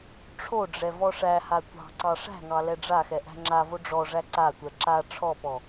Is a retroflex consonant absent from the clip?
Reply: no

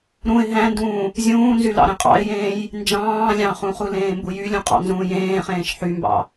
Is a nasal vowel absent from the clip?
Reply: no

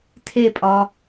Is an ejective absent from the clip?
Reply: no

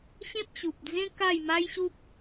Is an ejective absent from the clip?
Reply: yes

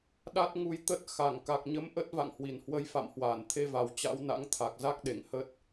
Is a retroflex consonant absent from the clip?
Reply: yes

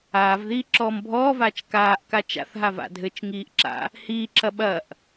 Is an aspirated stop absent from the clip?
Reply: yes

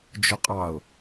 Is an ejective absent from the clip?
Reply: no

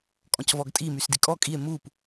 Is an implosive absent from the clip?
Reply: yes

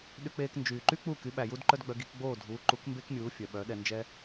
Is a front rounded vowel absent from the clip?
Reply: no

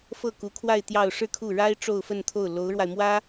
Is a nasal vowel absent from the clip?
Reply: yes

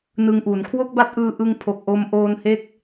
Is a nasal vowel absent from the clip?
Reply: yes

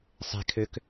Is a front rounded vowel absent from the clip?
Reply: no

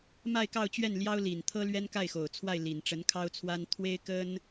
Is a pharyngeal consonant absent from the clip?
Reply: yes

